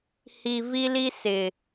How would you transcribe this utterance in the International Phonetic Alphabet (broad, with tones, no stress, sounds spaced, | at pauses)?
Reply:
h i˨ v i˦ l i˦ s ɪ˨